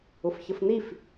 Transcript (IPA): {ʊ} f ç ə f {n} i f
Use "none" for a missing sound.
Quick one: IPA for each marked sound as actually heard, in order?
ʊ, n

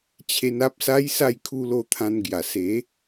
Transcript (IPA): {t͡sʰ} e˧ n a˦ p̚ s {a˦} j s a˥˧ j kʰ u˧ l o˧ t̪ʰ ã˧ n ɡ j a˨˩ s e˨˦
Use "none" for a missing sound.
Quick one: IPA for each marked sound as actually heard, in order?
t͡ɕʰ, a˦

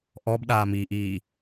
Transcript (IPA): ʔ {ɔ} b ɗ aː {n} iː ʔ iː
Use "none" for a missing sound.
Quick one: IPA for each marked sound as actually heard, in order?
ɔ, m

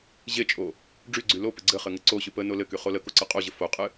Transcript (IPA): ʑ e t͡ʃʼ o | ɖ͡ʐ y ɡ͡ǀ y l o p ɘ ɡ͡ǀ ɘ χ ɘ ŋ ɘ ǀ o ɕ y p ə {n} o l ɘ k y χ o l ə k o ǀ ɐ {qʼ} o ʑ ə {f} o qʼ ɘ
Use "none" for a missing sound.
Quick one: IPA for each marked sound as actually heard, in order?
n, qʼ, f

